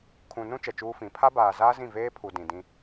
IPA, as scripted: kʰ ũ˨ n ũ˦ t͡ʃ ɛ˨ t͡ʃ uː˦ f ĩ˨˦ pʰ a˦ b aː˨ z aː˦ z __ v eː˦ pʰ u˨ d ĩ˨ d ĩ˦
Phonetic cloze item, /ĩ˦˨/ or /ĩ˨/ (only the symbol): ĩ˦˨